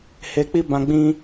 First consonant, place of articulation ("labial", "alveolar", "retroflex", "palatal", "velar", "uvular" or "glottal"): glottal